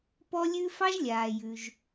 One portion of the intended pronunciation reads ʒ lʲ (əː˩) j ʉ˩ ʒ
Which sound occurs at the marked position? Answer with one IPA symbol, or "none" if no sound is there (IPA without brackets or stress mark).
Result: aː˩